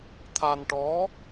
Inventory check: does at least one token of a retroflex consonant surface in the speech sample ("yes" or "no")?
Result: yes